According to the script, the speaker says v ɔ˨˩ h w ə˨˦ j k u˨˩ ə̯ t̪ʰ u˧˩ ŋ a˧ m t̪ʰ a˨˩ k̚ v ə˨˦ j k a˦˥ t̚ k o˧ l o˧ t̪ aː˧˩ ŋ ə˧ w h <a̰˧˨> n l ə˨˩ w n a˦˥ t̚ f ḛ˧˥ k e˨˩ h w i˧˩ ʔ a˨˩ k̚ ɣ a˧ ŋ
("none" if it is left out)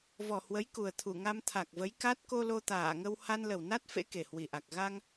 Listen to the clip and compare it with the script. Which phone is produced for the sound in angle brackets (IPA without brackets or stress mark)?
a˧